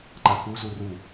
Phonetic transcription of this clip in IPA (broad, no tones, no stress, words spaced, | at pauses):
ǃakuzu ru